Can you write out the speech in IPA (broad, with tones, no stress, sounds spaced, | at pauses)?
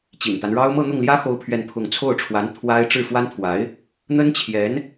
t͡ɕ ḭ˨˩ n t̪ a˦ n ɻ ɑ˥ ʊ̯ m ɤ˥˧ n̪ ʊ˥˩ ŋ l j ä˥ x o˥ ʊ̯ pʰ ɥ ɛ˥˧ n pʰ ʊ˥˧ ŋ t͡sʰ o˥˩ ʊ̯ ʈ͡ʂʰ w a˧˥ n t̪ʰ w a˥ ɪ̯ ʈ͡ʂ ɻ̩˥˩ f w a˥ n t̪ʰ w a˧˥ ɪ̯ | n̪ ə˥ n t͡ɕʰ j ɛ˧˥ n